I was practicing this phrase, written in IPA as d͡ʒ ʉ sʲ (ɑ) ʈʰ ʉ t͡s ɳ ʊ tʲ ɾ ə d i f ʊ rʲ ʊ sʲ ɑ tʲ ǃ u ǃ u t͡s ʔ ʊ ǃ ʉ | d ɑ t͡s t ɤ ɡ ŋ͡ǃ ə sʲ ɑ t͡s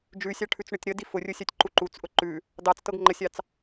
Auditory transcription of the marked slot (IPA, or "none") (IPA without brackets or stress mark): ɑ